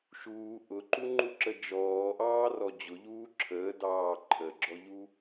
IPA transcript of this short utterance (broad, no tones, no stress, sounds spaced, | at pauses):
ʃ uː ʔ ʊ ǃ u ŋ͡ǃ u ǁ ə d͡ʒ ɔː ʔ ɑː r ɔ d͡ʑ ʊ ʎ uː ǁʰ əː d ɑː ǃʰ ə ɡ͡ǁ ɔ ʎ u